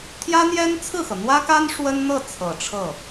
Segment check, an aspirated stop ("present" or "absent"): present